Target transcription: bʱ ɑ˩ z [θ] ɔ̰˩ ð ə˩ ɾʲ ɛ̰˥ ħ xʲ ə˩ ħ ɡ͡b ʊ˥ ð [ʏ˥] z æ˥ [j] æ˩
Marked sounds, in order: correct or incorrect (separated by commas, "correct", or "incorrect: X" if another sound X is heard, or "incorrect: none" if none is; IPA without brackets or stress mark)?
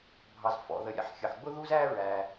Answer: incorrect: f, incorrect: u˥, incorrect: ɹ